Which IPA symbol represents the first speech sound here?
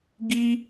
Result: ɡ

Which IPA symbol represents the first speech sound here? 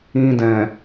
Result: ĩ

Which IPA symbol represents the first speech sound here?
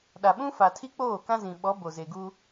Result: ɗ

